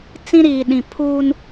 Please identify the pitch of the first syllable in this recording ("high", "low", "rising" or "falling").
high